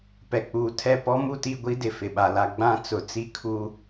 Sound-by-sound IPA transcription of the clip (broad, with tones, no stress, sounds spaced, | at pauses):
p ɛ˨ k͡p uː˨ tʰ ɛ˦˨ p ɔ˦ m u˦˨ t i˦˨ ɡʷ i˦ d ɪ˨ f ɪ˨ ɓ a˨ l a˦ ɡ͡b ã˦ t͡s ʊ˨ t͡s i˦ kʰ u˦